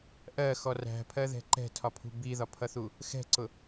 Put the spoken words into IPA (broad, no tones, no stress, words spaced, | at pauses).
ʔɜxɔ ræ̤pʰɜðɛ̤ ǃɛ̤tʰɒpʰṳ biðɒpʰʌθu | xɛ̤ǀʊ